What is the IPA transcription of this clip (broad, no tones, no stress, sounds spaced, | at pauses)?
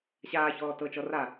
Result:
ɕ aː ç ɔː t ɤ t͡ʃ ɔ r a